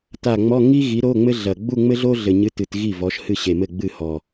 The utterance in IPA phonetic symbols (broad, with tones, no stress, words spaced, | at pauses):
ta˨˩ ŋ͡mɔ˧˥˧ ŋi˥ ɣi˨˥ɾo˧˥˧ŋ͡mɘ˥ɮɐ˨˩ ɡ͡bu˥˧ŋ͡mɘ˥ɮo˥ ɮɘ˨˩ɲɨ˧˥˧tɨ˨˩t ɣi˥˩vɔ˨˥ʃhɨ˥˩ ɕe˨˩mɘ˥˩ ɡ͡bɨ˥˩hɔ˨˩